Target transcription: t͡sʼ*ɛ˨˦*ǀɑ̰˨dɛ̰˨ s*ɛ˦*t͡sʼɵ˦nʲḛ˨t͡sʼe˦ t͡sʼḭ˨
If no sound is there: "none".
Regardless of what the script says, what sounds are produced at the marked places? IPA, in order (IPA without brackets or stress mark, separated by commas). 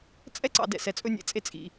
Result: ɛ˦, ɛ˨